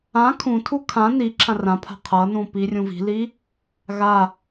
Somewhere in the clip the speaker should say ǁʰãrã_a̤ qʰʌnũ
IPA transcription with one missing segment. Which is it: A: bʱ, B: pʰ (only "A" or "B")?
B